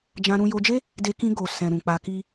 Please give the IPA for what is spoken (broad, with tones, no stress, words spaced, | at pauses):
d͡ʒã˧ɾũ˧ jo˧d͡ʒe˦ | de˧kĩ˧ɡo˨ sɛ̃˨ɾũ˨ k͡pa˧ki˦